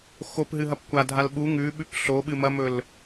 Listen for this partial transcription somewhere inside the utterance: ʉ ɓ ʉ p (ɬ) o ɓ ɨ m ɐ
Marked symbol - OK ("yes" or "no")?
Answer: yes